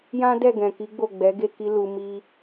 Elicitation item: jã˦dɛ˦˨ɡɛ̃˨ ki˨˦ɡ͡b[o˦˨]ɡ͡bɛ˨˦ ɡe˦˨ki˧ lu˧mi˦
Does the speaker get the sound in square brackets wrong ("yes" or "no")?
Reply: no